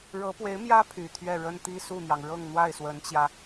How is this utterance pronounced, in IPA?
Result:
ɻ ɤ˧˥ p w e˧˥ ɪ̯ m j ä˥ pʰ y˨˩ t̪ʰ ɥ ɛ˥˩ ɻ ə˥ n t̪ i˥ s u˥˩ n̪ j ɑ˩ ŋ ɻ ɤ˥˧ ŋ n̪ w a˥˩ ɪ̯ s w ə˧˥ n t͡ɕ j ä˧

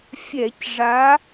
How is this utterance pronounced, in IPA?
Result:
fʲ ɛ˧˩˧ c ʐ a˨˦

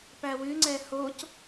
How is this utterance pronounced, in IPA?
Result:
p æ w ʉ ŋ͡ǀ ɛ h o c

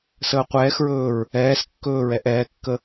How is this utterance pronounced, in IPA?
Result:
s əː qʷ ɛː x ɹ ɵː ɹ | ɛː s kː ɵː ɹ ɛ ʔ ɛː kː ə

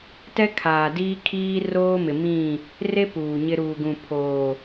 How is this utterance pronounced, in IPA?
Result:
t ɛ˦ kʰ aː˨ d iː˦ kʰ iː˦ r oː˦ m ɪ˨ m ĩ˦˨ | r e˦ p uː˨ ɲ ɪ˦ ɾ uː˨ ɡ ũ˨ pʰ oː˨

